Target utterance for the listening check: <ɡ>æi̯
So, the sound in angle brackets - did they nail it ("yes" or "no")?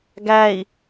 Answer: yes